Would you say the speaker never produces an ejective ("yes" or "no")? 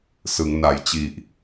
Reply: yes